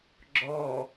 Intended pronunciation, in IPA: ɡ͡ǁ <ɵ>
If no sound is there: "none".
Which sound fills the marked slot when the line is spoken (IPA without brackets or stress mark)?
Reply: ɔ